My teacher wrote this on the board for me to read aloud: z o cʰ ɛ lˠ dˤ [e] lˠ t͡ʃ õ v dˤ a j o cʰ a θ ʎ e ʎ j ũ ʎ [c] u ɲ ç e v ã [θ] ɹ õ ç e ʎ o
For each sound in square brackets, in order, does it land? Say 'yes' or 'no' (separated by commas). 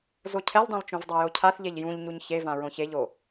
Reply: no, no, no